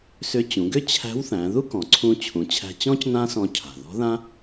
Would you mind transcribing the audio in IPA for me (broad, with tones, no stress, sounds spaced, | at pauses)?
s ʏ˧˥ t͡ɕ ũ˩˧ ɡ ʏ˥ t͡ɕʰ æ̤˧˥ w θ æ̃˩˧ ð u˥ k ɔ̃˩ ǀʰ ũ˧ t͡ɕʰ ũ˩˧ t͡ɕʰ æ̤˧ t͡ɕ ɔ̃˥ c n ã˥ s ɔ̃˧ cʰ a̤˩ ð ɔ̤˧˥ ð ã˥